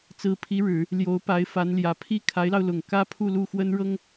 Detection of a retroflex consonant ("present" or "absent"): present